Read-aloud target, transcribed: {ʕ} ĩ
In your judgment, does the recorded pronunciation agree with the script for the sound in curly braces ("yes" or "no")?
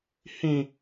no